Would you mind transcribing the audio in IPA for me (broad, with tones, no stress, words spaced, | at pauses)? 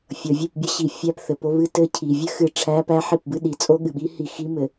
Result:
fʲʌ˨vʲɨ˦˨pbʲʌ˦ɕi˨ fʲæ˦pθɘ˨po˦ βɨ˦tɘ˦ cʰi˨vʲɘ˦xɨ˨ ʈ͡ʂʰæ˦pæ˦ħi˦˨pbɨ˦ ɗi˨t͡sʼo˦ɠɨ˨ɓi˦ hi˦˨xi˦mɘ˨